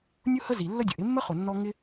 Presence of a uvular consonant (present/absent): present